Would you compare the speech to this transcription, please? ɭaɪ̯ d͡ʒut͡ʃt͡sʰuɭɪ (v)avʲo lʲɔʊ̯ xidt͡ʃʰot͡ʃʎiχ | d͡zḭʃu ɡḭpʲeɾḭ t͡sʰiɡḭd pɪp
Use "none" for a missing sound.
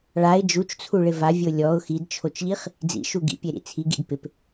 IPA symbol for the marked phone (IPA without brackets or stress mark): v